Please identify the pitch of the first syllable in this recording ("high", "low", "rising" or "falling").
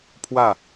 falling